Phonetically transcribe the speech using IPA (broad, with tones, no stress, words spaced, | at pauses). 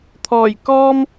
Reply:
t̪ʰɔː˨˩jkɔː˥m